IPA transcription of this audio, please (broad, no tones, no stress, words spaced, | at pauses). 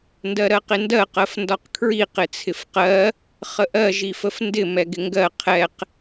ndɜɾɜqɪndɜ qɜfndɒqkʰɹi qɪt͡sʰɪfqɜ | χəʔɜ ʒifəfndɪ mɛɡɪŋɡɜ qʰɛq